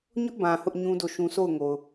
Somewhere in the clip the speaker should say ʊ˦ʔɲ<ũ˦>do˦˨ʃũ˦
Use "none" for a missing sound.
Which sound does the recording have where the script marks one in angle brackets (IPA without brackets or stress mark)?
ũ˦